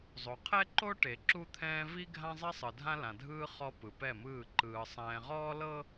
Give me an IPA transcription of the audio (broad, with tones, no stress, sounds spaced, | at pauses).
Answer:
zˤ o˨ qʰ ɛ˦ ǃ o˦ ʈ e˨ ǁ u˦ t̪ʰ ɛ̃ː˦ v i˦ ɡʱ ã˦ zˤ i˦ sˤ ɯ˨ dʱ ã˦ l ã˨ dʱ ɯː˦ χ ɔ˦ p ɯ˨ p ɛ˦˨ m ɯː˦˨ ǃ ɯː˨ sˤ ɛ̃ː˨ ʁ ɔː˦ l ɤ˦